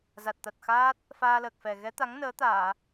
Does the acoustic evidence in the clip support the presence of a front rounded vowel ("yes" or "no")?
no